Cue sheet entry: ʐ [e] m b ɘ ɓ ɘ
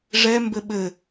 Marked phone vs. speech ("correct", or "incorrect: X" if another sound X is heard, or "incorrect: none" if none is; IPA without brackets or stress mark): incorrect: ɛ